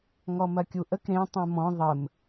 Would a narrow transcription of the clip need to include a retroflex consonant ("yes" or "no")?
no